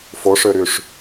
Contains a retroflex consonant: yes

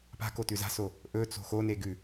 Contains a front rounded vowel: no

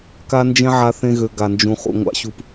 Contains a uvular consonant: yes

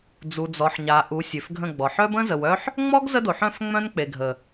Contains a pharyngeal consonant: yes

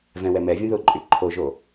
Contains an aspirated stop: yes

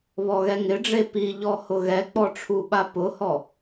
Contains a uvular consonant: no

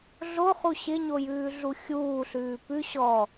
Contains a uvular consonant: yes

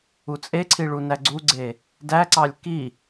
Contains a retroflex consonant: yes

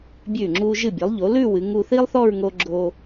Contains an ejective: no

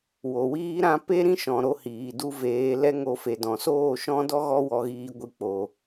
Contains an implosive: no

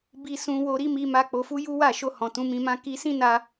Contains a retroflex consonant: no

